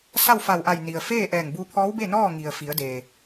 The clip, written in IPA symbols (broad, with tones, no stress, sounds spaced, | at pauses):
s a˥˨ w f a˧˩ w ʔ a˧˩ j n i˩ ə̯ f eː˥˨ ʔ ɛː˧˩ ŋ b u˧ pʰ ɔː˧˥ w b e˥˨ n ɔː˥˨ ŋ i˩ ə̯ f i˩˧ ə̯ d eː˩